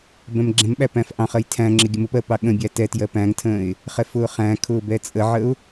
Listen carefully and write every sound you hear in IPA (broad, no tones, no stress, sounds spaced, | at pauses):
b ɛ̃ m ɡ͡ǁ ɛ̃ m ɓ æ p æ̃ f ʔ ɑ̃ χ ɜ j tʰ æ̃ ŋ͡ǁ ɪ ɡʲ ə m ʊ p ɜ p ɑ ɠ ə̃ bʲ æ t ɛ t j ɜ p æ̃ ŋ tʰ ə̃ː ɪ̯ | χ ɛ f ʊː χ æ̃ kʰ ʊː b ɛ t͡sʼ ə ʕ ə ʊ̯